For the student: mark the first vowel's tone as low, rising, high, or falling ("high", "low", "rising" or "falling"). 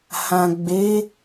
low